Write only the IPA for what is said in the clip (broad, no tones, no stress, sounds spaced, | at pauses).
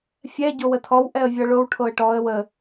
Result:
fʲ ɛ ɟ o w ə tʰ ɔ w ʔ ɛ ə̯ vʲ ɔ ɭ o w ʈʰ o ə̯ ʈ ɔ ə̯ w ə